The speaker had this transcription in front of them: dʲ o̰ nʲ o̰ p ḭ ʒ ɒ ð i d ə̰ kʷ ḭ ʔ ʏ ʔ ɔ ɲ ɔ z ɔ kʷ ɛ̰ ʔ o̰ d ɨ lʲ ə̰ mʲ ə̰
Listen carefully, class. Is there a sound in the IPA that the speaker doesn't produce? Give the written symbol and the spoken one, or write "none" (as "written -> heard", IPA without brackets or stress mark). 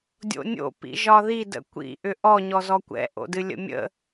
none